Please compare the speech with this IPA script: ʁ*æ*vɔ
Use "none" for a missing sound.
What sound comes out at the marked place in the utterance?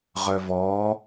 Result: œ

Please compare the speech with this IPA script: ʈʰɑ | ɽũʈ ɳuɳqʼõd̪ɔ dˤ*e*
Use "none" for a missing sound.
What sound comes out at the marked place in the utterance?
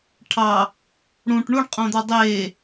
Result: e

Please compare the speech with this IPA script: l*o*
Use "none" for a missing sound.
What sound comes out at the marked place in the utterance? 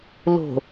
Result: o̤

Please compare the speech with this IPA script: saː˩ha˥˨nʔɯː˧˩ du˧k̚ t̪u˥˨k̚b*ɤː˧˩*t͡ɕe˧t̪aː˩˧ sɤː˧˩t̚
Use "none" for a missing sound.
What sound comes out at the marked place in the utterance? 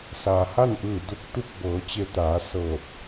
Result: ɤː˩˧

